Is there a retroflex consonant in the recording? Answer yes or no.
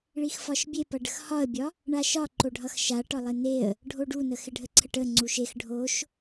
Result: yes